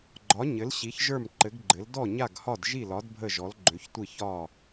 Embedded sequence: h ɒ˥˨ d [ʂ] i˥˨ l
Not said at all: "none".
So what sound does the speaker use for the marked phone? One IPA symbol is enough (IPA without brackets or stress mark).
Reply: ʒ